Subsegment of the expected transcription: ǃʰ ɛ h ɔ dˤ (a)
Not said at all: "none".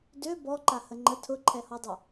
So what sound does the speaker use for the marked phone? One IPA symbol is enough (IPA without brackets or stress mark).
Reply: ə